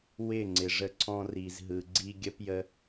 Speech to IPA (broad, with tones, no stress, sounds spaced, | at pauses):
w ɪ˦˨ ŋ͡ǀ ɪ˨ ʐ ə˧ ǀʰ ɔ̃˧ r i˨ z ɦ ɯ˨ ɡ͡ǀ i˦ ɡʲ ə˧ p j ə˧